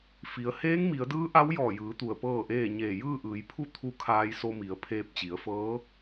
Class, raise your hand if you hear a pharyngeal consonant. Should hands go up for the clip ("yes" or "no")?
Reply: no